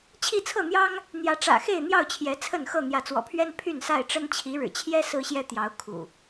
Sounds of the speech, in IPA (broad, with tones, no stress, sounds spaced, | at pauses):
t͡ɕʰ i˥˨ t͡sʰ ɤ˥˨ n̪ j ɑ˦ ŋ | n̪ j ä˨˦ ʈ͡ʂ ä̰˨˩ x e˥˨ ɪ̯ n̪ j ɑ˥˨ ʊ̯ t͡ɕʰ j ɛ˨˦ t͡sʰ ə˥˨ n x ɤ˥˨ n̪ j ä˨˦ t͡s w ɔ̰˨˩ pʰ ɥ ɛ˦ n pʰ y˥˨ n s a˥˨ ɪ̯ ʈ͡ʂ ə˦ n t͡ɕʰ i˨˦ ɻ ɻ̩˨˩ t͡ɕʰ j ɛ˦ s ɹ̩˦ ɕ j ɛ˦ t̪ j ɑ˨˦ ʊ̯ kʰ ṵ˨˩